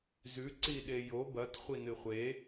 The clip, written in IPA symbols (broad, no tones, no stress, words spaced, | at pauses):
zʉ ǀiɗejo bɐt χʷinɨχʷe